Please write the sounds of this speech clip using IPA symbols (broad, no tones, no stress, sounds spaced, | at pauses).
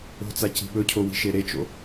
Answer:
o̤ t͡s a c i̤ ɓ ɵ cʰ o w i̤ ʃ e ɾ e t͡ʃ o̰